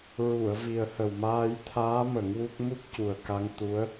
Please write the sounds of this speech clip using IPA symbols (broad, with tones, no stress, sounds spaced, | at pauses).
ɹ u˨˩˨ ə̯ v i˨˩ ə̯ h ə˨˩ w m aː˧ j t̪ʰ aː˧˥ m ə˨˩˦ ŋ w u˦˥ k̚ m u˦˥ k̚ c u˨˩ ə̯ k a˧ ŋ t̪ u˧˥ ə̯